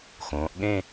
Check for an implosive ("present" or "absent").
present